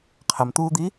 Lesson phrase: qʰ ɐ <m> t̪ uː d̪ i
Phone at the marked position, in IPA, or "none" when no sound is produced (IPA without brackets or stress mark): m